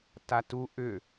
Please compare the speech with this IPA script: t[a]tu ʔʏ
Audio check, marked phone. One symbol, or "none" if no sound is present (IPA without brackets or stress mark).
a